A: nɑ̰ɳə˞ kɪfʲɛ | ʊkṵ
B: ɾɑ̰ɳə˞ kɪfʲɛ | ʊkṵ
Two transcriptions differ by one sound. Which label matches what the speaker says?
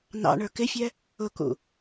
A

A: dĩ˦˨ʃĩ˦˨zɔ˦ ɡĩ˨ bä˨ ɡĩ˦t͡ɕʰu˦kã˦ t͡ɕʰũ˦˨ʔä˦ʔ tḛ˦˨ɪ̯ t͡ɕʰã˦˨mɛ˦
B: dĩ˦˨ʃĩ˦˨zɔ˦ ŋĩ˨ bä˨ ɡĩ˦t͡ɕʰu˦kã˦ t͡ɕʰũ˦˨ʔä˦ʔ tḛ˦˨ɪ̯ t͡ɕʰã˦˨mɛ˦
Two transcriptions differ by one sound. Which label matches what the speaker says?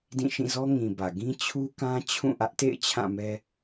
B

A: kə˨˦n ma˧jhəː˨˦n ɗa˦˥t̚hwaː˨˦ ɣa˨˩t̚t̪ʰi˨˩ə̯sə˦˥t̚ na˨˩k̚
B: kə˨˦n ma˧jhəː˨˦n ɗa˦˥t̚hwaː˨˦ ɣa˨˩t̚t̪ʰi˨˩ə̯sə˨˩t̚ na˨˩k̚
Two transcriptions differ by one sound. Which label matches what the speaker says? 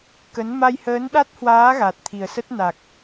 A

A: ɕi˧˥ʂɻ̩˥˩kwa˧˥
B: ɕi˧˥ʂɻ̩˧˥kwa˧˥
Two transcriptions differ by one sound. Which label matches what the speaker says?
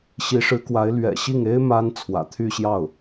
B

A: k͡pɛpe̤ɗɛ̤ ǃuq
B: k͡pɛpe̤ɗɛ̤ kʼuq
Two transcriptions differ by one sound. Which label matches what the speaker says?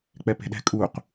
B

